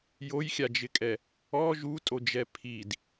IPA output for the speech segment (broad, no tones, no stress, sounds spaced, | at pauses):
j o j xʲ a d͡ʒ ɪ kʼ ɛ | ɔ ʒ u tʼ o d͡ʒ ɛ pʰ i d